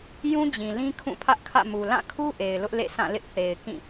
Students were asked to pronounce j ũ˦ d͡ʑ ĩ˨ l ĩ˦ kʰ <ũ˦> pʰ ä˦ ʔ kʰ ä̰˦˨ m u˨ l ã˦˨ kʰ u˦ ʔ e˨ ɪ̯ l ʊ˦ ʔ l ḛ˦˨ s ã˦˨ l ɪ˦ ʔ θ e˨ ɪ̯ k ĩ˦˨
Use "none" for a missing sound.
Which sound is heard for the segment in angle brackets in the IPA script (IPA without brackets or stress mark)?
ũ˦˨